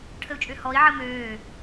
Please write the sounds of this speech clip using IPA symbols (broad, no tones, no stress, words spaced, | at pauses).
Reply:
ʈʰəu̯t͡ʃʼøhɔi̯ ʕəmøː